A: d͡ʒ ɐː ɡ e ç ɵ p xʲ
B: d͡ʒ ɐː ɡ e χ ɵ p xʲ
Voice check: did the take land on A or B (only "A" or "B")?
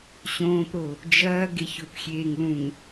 A